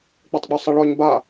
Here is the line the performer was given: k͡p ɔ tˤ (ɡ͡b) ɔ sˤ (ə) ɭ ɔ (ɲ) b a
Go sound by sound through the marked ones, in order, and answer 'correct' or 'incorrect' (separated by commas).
correct, correct, correct